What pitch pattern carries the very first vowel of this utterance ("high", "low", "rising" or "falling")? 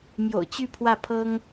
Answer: low